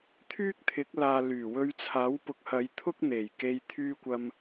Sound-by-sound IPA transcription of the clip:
t̪ʰ yː˥ k̚ t̪ʰ ɪ˨˥ k̚ l aː˨ l yː˨˩ w ɵ˧ ɥ t͡sʰ aː˨˥ w p ʊ˨˥ k̚ h ɐ˨˧ j t̪ʰ ʊ˥ k̚ n̪ e˨˩ j k e˧ j t̪ʰ yː˧ kʷ ɐ˨ m

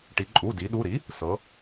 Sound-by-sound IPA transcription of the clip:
ʈ i˩˧ ǃʼ u˩˧˩ d i˩˧ ɗ u˩˧˩ ɾ i˩˥ | s ɤ˩˧

